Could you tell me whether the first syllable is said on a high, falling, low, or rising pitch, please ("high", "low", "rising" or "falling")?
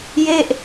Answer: falling